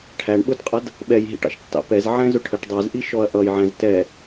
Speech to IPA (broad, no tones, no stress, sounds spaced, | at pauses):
ʈʰ æ ɳ ɓ ʊ d qʼ ʌ d | ɓ ɛ j ɦ ḭ ʈ ɑ̰ ʃ tː ɑ̰ p ɛ z ʕ ɛ̃ z ʊ ʈʰ ə ʈ dˤ ɛ z ʔ i ʃ ɔ ɐ̯ ʔ ʌ j ʕ æ̃ z t ɛ